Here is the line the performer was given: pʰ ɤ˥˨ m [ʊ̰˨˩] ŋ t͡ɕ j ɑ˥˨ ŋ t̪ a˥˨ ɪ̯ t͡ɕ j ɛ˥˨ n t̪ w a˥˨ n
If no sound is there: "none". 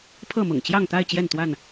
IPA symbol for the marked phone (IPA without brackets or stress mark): ʊ̰˨˩